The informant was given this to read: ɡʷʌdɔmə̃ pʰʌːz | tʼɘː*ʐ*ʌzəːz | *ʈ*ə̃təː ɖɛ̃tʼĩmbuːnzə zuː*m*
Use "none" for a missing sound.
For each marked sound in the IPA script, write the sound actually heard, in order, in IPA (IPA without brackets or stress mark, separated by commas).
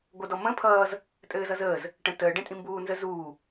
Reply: z, ʈ, none